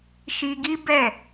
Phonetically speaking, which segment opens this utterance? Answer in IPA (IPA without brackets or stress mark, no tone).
ʃ